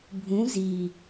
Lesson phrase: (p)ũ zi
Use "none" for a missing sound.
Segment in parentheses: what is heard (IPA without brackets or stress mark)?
bʱ